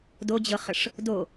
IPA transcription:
dod͡ʑɤχəʂ | do

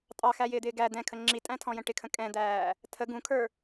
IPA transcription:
tʼɑxæjɪːd̪ɪː ɡæ d̪ɛ̃kʰə ŋ͡ǁitʼæ̃tʰɔ̃jə̃ ʈɪkʰə̃ kʼɛ̃d̪æː | tʰə ɡũkʰə˞

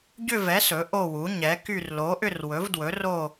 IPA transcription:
ɟʏ˦˨vɛ˩˥ sɵ˩˥ʔo˦˨wu˩˥ ɲɛ˩˥ky˦˨r lo˩˥ʔʏ˦˨rwɵ˩˥vdwɵ˩˥ ro˦˨

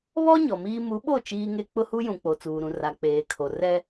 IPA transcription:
βɔ˦ ɲɔ˨miː˦ mu˨˦ɓo˦˨ t͡ʃiː˦ŋe˦ k͡pʊ˦hu˦jũ˨ k͡po˨t͡suː˨ɾũ˨ ra˨k͡peː˨kʰo˨ rɛ˦

